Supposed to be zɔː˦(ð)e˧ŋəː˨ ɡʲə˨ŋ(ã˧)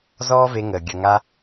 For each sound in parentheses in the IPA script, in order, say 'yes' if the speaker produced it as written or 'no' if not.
no, no

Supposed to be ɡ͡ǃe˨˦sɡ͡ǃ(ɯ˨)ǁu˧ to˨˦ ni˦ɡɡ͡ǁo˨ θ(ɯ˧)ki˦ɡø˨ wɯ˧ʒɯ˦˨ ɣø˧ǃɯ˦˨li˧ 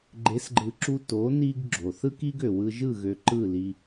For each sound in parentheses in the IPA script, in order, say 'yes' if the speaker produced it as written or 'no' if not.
yes, no

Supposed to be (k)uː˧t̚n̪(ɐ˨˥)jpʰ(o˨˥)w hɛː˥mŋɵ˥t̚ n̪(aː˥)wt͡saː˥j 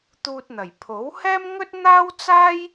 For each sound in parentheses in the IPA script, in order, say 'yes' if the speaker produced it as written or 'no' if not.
no, no, yes, yes

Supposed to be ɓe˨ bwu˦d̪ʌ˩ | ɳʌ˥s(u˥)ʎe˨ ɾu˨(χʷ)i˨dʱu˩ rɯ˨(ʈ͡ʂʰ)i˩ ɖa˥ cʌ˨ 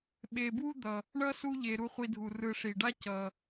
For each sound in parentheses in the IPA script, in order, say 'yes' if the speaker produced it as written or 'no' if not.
no, yes, no

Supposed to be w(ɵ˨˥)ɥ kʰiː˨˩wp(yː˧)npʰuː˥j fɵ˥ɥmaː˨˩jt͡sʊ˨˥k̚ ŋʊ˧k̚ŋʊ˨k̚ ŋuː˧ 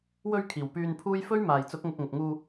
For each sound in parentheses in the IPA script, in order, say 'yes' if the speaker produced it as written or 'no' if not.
no, yes

